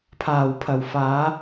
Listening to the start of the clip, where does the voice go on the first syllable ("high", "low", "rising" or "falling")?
low